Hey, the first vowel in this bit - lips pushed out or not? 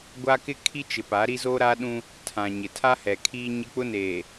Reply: no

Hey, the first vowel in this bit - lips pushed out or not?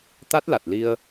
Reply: no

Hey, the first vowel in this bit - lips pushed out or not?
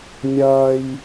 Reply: no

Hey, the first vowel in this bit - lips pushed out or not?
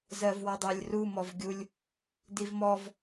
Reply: no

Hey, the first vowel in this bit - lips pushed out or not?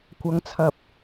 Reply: no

